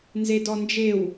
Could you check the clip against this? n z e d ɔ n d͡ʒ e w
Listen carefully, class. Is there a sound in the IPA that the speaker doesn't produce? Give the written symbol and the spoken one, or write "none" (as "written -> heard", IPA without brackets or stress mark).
none